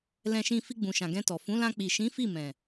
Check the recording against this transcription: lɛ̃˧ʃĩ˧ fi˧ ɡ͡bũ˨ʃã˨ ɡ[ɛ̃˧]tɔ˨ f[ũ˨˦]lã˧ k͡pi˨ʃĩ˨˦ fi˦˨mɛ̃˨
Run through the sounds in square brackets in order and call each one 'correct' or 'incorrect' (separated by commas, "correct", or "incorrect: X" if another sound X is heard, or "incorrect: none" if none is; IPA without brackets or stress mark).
correct, correct